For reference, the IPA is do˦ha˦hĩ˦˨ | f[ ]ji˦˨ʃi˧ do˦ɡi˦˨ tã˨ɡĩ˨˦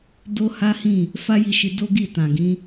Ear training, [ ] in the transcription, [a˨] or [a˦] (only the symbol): a˦